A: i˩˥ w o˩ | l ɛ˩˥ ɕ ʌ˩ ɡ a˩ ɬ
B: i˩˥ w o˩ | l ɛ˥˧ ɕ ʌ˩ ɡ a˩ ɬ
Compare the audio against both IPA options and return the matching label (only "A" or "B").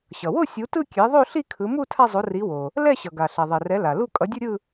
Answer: B